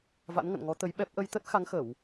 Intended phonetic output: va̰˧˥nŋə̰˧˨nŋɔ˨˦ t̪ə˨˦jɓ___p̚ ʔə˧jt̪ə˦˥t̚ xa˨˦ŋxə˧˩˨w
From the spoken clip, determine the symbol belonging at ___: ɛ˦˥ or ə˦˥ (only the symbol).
ɛ˦˥